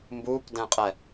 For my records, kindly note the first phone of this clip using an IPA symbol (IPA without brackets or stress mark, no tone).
m